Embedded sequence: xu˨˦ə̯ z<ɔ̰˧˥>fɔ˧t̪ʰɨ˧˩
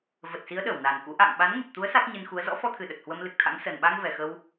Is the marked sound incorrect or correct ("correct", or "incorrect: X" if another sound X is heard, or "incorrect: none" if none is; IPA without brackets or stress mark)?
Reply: correct